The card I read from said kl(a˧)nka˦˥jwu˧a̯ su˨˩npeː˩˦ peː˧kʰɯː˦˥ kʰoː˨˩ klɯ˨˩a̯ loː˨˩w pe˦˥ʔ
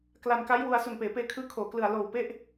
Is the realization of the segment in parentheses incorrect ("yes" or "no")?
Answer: no